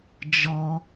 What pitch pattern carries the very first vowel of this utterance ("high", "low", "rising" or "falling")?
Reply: high